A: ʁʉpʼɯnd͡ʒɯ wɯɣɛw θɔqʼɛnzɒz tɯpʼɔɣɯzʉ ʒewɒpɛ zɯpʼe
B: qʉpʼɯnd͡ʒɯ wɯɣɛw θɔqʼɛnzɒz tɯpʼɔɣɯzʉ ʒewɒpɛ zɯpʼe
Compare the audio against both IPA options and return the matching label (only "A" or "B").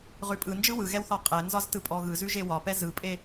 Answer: A